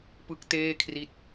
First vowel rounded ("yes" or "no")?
no